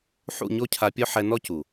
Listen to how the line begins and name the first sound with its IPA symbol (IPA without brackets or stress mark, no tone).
ħ